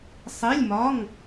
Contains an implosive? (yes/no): no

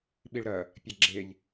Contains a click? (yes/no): yes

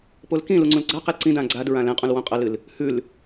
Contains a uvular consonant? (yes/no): yes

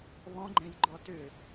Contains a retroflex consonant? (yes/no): no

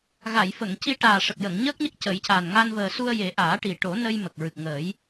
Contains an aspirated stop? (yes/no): no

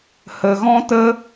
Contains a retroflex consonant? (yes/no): no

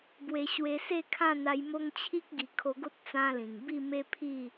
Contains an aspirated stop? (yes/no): yes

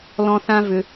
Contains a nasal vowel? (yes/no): yes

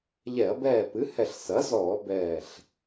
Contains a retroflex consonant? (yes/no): no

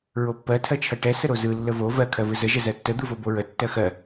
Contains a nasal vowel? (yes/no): no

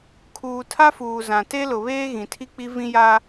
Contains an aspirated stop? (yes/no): yes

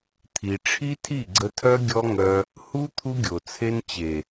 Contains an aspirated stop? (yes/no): yes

